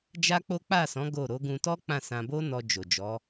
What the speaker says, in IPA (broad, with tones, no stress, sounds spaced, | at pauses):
d͡ʒ a˦ k͡p o˦ k͡p a˦˨ s ɔ̃˨˦ ɡ o˦˨ ɾ o˨˦ ɡ ũ˧ t ɔ˦ k͡p ã˦˨ s ã˧ b o˦ n ɔ˧ d͡ʒ o˨ d͡ʒ ɔ˨˦